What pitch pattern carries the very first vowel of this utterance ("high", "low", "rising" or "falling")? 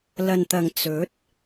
low